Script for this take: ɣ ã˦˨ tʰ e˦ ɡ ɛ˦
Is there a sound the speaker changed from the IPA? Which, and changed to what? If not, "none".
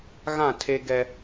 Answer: none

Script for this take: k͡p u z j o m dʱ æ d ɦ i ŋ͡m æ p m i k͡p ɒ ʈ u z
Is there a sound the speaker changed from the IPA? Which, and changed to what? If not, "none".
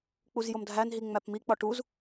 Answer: d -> n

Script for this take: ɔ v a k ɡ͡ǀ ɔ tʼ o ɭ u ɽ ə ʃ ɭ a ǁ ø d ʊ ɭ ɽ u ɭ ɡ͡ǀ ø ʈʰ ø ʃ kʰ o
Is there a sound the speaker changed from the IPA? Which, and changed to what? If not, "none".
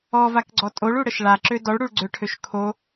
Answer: ʊ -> ɔ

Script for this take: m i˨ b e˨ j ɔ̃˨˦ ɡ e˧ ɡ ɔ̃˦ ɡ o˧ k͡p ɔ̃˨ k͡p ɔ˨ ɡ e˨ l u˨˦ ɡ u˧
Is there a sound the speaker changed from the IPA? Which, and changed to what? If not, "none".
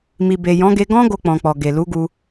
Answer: none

